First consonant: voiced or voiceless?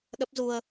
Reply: voiced